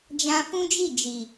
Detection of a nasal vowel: present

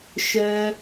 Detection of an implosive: absent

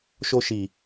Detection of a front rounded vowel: absent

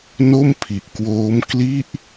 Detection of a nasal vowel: absent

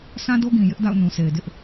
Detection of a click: absent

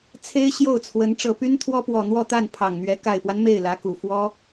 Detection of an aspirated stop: present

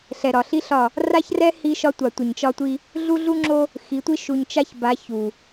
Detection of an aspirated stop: absent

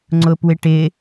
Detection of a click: present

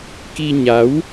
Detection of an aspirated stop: absent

